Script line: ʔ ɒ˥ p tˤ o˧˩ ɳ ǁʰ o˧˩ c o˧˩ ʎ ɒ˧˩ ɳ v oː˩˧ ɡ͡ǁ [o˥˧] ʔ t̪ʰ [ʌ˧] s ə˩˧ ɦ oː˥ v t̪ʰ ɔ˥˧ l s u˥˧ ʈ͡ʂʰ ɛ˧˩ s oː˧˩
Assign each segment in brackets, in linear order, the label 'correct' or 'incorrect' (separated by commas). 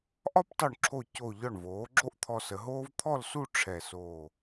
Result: incorrect, incorrect